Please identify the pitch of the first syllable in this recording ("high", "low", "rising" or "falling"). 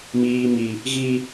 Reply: high